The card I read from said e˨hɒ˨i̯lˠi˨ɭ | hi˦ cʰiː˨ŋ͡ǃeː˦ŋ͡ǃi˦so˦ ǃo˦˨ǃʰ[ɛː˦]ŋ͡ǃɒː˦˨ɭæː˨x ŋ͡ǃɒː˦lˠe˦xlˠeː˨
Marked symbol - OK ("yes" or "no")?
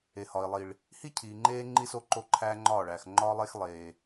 no